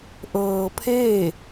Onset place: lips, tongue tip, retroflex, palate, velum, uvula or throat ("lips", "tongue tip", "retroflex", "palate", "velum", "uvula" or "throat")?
throat